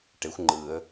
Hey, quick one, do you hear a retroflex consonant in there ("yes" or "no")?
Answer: yes